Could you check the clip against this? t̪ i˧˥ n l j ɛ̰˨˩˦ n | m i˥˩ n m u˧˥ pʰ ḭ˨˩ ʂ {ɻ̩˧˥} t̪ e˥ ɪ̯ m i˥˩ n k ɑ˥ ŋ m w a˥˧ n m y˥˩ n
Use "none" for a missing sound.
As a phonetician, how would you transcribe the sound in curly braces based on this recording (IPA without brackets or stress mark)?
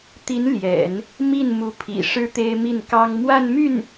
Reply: ɻ̩˥